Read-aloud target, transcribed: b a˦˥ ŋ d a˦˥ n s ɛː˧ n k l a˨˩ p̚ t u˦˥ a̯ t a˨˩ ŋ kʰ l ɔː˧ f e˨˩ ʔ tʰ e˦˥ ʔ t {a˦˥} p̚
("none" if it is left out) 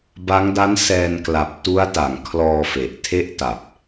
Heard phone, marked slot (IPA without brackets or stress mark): a˨˩